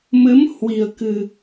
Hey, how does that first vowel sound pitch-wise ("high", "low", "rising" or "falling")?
rising